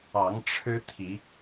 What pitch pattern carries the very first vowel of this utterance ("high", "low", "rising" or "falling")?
rising